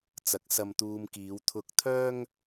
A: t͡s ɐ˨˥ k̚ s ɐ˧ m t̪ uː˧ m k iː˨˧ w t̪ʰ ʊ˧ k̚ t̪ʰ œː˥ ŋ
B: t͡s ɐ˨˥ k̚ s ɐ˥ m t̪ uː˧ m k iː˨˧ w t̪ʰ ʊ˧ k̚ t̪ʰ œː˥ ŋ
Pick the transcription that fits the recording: A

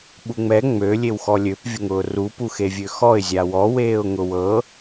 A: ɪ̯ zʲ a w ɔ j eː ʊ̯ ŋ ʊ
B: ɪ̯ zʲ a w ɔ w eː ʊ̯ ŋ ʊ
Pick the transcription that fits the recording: B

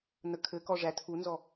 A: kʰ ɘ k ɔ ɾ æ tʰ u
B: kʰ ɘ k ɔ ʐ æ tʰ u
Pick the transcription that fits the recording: B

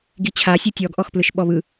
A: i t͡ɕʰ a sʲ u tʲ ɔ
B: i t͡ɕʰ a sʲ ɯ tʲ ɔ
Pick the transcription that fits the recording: B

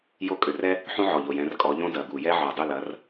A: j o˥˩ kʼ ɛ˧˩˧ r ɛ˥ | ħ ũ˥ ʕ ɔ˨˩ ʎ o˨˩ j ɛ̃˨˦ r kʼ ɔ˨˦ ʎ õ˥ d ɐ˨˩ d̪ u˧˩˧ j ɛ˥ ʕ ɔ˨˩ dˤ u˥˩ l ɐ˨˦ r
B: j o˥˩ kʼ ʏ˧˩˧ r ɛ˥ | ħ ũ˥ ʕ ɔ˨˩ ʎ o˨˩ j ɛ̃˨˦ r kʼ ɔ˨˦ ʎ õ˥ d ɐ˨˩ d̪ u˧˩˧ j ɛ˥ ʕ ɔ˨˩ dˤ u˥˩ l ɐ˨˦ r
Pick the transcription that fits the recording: B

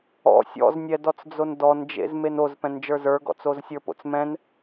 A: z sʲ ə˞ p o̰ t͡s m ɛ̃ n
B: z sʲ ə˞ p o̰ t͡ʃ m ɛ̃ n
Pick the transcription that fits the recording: A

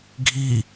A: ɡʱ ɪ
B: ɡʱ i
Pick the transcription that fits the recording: B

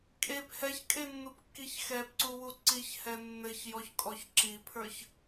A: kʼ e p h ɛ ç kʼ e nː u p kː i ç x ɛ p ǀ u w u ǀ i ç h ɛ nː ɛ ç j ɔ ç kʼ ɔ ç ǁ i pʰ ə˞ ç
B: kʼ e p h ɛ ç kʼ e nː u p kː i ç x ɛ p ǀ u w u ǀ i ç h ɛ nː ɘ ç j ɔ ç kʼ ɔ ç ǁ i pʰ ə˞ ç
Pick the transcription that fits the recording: B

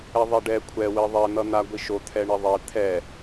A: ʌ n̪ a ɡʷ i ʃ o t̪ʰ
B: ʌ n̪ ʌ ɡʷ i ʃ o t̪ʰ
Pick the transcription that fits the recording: A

